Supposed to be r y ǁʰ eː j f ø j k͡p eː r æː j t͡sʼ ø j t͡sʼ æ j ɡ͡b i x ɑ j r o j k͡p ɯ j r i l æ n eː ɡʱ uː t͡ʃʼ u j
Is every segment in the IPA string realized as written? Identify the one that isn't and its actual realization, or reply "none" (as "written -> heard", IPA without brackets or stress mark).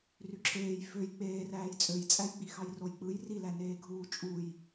none